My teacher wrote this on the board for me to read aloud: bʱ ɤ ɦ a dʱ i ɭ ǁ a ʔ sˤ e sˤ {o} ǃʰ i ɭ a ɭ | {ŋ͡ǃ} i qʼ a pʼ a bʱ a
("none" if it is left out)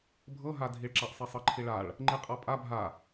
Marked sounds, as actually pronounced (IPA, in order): ɤ, ŋ͡ǃ

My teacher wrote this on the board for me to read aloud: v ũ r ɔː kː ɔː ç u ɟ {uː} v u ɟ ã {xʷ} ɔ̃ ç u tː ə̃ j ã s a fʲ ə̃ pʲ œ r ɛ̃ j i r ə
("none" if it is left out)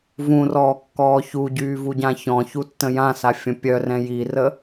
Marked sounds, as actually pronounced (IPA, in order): yː, ç

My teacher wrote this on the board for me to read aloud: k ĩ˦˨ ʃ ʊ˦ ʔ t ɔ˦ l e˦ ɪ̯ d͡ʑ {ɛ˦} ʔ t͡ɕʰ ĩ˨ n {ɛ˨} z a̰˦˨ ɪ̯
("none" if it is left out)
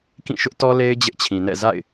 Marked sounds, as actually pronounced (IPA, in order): ɪ˦, ɛ̰˦˨

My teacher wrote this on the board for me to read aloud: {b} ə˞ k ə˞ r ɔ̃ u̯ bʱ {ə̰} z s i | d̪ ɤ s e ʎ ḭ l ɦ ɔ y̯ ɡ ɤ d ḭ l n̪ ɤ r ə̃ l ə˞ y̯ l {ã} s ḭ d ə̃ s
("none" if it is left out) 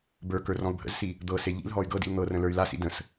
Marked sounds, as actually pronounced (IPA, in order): b, ə̰, a

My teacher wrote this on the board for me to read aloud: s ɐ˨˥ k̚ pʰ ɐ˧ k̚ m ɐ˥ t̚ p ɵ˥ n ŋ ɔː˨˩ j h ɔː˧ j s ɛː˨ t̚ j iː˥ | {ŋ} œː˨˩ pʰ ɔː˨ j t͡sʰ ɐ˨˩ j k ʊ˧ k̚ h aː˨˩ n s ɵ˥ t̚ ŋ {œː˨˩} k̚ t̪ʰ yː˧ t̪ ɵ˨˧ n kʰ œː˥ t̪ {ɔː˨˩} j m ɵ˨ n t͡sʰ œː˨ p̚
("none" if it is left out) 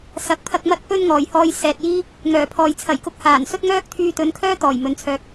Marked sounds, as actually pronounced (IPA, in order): ŋ, œː˥, ɔː˨˩

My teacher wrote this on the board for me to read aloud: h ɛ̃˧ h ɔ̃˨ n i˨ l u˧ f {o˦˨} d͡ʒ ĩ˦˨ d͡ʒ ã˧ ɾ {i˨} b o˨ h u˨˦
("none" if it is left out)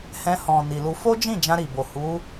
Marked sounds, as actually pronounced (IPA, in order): o˦, i˨

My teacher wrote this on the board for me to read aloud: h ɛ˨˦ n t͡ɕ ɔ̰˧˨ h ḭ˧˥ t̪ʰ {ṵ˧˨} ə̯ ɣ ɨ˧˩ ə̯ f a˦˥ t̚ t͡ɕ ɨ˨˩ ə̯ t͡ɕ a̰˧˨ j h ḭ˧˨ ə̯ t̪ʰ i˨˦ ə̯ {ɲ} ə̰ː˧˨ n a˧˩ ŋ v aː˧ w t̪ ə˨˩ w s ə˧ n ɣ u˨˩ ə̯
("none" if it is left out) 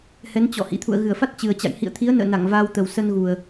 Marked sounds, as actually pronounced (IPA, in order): ṵ˧˨, n

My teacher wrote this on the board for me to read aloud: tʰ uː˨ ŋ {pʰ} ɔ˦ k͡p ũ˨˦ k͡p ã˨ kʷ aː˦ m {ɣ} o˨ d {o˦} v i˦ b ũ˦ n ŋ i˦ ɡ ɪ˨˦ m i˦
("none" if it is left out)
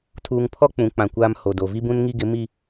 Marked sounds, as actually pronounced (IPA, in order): pʰ, h, o˨

